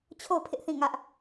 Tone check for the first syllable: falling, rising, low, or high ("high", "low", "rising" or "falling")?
falling